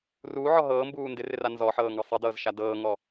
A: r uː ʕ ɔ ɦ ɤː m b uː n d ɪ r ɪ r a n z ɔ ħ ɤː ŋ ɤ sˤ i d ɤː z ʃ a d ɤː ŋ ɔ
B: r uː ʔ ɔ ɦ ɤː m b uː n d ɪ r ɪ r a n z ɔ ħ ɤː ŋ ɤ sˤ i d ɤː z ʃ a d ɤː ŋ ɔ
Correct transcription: A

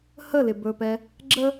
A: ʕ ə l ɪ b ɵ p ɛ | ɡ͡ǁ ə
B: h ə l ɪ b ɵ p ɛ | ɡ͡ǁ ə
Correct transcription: B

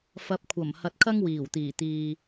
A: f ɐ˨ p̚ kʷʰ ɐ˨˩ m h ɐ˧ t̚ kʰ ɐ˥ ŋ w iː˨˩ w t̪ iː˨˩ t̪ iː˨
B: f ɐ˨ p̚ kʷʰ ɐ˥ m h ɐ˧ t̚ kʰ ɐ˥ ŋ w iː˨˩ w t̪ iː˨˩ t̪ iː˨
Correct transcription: A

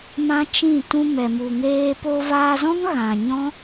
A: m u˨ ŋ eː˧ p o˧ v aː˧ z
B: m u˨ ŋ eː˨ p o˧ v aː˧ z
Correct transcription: A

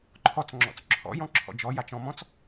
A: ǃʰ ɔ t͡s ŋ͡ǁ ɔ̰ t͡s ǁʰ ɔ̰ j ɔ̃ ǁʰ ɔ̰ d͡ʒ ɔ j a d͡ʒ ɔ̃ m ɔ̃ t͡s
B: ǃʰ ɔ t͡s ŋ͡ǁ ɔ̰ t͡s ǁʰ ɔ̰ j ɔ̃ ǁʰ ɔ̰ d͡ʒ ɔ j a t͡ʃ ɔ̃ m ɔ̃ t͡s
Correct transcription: B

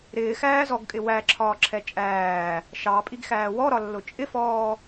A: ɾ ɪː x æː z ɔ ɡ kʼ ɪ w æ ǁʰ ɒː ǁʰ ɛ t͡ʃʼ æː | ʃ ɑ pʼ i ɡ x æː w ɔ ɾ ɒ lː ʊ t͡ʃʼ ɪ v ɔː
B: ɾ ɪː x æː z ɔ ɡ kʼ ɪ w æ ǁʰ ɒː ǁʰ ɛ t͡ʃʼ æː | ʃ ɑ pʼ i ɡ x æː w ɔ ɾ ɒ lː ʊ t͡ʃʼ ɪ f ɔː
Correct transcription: B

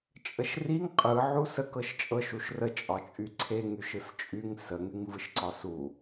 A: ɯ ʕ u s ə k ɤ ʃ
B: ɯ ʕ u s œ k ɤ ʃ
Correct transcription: A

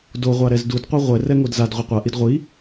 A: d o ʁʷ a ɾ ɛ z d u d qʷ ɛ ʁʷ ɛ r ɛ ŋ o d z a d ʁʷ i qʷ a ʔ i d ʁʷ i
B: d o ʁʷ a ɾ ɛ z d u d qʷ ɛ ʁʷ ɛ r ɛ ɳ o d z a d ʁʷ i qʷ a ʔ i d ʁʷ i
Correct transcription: A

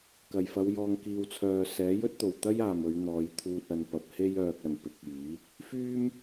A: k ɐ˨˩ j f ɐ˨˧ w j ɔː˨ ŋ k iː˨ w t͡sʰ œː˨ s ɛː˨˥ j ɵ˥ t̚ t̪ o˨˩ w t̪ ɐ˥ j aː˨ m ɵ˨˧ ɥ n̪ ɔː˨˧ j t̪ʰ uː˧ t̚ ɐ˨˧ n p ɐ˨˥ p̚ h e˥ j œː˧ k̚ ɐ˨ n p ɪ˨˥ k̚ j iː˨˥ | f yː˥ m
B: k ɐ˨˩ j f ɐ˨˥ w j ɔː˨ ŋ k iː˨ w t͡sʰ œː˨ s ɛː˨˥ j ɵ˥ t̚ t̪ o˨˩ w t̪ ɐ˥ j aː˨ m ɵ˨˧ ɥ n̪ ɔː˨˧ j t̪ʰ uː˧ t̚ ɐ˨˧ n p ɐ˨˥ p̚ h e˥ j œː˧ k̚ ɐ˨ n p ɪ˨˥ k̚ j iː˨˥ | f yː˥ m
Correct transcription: A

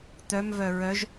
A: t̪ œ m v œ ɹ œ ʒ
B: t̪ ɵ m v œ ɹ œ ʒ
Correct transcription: A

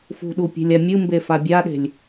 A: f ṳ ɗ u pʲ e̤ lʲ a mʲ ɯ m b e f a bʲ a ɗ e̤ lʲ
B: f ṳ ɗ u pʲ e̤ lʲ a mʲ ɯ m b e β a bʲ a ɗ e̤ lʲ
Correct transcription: A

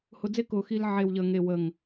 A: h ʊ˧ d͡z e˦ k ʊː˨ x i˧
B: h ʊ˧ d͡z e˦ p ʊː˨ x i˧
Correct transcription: A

